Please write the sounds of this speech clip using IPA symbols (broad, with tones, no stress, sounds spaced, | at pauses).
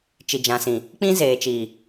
t͡ʃ i˨ d͡ʒ ã˨ s ĩ˨ | k͡p ĩ˦ z eː˨ t͡ʃ iː˨